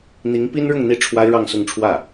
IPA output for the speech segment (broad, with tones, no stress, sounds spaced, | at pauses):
n̪ i˧˥ ŋ p i˥ n ɻ ʊ˥˧ ŋ n̪ i˥˩ ʈ͡ʂʰ w a˥ ɪ̯ ɻ ɑ˥˧ ŋ s ʊ˥˧ ŋ ʈ͡ʂʰ w ä˥˩